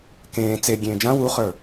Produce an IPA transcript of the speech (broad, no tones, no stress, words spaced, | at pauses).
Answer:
kẽː t͡se ɡʲẽːd͡ʒã wuχə˞